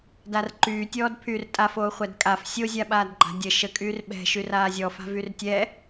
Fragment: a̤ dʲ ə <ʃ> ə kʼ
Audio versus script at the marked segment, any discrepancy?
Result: no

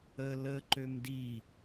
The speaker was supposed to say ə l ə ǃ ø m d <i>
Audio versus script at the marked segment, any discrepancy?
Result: no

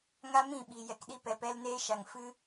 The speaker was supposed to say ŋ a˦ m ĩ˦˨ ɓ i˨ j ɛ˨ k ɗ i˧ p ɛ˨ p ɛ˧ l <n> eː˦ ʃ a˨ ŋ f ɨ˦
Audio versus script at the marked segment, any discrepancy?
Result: no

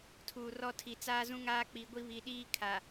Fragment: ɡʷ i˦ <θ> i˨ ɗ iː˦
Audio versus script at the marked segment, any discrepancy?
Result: yes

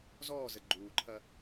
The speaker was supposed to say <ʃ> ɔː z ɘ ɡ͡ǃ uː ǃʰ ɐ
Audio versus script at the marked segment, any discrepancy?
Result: yes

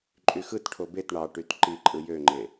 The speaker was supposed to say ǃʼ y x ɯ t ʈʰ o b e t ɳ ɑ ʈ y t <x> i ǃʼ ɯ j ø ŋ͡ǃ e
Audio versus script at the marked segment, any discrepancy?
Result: yes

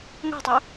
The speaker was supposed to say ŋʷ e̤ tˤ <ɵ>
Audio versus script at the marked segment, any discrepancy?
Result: no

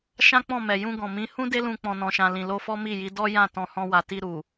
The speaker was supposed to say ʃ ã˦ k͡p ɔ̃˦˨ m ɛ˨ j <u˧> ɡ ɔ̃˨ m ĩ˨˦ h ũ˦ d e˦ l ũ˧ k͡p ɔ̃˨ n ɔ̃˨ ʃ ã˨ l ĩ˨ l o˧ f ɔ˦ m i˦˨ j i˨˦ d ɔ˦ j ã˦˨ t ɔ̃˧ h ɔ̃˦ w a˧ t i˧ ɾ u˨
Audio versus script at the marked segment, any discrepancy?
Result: yes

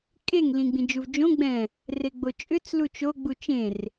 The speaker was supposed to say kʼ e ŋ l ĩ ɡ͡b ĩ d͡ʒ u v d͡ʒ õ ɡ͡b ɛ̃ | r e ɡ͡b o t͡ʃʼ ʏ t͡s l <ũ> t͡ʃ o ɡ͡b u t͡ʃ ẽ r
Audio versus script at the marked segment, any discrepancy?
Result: yes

